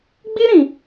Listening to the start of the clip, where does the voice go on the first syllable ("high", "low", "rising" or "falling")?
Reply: high